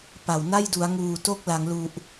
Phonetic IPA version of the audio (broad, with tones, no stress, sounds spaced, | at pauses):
p a˨˩ w n a˥˩ j d u˩˦ a̯ ŋ uː˨˩ t o˥˩ k̚ l a˩˦ ŋ l u˨˩ ʔ